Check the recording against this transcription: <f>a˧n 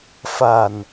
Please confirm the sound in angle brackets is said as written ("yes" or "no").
yes